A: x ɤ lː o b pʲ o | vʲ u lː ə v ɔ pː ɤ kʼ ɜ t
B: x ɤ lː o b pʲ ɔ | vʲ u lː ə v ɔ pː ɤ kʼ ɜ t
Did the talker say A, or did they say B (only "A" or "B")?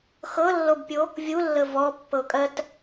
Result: A